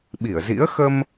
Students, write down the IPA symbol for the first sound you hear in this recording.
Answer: ɓ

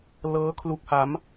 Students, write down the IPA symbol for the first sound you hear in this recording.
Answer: l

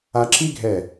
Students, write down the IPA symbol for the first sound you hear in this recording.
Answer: a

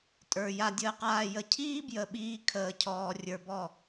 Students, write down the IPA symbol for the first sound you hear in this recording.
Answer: tʼ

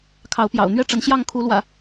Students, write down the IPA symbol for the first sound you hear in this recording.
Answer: kʰ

